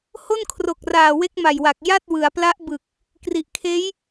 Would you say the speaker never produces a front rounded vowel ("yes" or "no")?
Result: yes